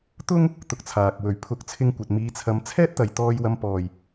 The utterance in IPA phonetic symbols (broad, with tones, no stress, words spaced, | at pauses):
t̪ʊ˥ŋ | t̪ʊ˧k̚t͡sʰaː˨k̚ wɵ˨˩ɥpʰʊ˨˥k̚t͡sʰɪ˧ŋkʷɐ˨t̚ miː˨˧t͡sʰɐ˨˧m t͡sʰɛː˥t̚t̪ɐ˨j t̪ɔː˧jwɐ˧m pɔː˨˩j